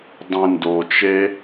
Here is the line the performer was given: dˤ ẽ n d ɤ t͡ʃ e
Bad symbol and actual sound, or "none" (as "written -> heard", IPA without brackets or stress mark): ɤ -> o